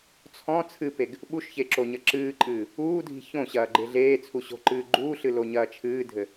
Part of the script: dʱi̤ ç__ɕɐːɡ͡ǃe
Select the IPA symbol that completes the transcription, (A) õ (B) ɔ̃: A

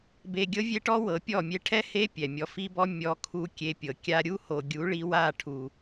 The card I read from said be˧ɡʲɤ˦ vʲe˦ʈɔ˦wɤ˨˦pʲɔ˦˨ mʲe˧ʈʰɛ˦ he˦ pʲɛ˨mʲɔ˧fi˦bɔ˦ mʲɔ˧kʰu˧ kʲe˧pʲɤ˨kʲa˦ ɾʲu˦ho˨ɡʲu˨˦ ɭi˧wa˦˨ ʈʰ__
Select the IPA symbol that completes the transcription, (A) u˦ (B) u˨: B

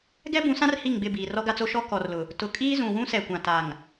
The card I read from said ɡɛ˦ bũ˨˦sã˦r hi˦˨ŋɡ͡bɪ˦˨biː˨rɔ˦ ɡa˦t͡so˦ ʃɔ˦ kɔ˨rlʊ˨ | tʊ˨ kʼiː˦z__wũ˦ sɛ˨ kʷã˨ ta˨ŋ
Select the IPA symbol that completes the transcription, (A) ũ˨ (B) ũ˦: A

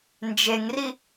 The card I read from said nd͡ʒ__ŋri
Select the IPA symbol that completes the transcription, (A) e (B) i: A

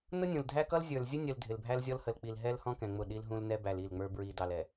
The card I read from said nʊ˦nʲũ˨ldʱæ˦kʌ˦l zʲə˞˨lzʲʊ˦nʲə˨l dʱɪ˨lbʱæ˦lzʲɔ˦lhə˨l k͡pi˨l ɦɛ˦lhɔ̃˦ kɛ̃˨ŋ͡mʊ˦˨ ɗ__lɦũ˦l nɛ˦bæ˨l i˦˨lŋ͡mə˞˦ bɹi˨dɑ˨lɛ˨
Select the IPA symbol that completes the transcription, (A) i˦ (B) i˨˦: A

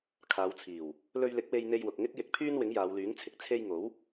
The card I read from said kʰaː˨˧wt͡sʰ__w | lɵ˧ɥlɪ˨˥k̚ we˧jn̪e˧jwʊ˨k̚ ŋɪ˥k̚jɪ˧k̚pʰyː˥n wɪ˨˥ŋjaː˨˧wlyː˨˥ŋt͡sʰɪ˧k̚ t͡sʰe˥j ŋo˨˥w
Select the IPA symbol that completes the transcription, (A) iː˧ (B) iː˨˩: B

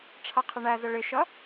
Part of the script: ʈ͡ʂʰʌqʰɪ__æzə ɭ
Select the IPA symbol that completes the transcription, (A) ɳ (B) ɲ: A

